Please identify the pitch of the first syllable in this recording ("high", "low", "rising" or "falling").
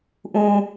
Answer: low